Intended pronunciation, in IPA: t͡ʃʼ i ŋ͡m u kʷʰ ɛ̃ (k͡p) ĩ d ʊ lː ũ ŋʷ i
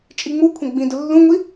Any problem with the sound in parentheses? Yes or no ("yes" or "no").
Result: yes